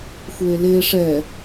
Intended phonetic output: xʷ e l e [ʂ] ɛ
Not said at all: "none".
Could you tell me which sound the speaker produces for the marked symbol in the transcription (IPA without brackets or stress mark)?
ʂ